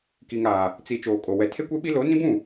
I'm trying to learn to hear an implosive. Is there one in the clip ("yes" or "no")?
yes